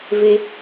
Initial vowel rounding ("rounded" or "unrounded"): unrounded